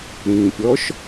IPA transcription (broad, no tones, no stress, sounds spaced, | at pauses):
ɾ ĩ pʲ ɔ ʃ